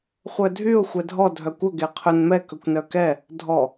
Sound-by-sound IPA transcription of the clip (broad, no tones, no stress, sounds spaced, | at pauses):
χʷ œ dʱ y ʊ̯ xʷ ɛ dʱ ɔ dʱ œ kʷ ɵ ɡ e qʰ ɵ n m ɛ k ɵ kʷ n œ k ɛ | dʱ ɔ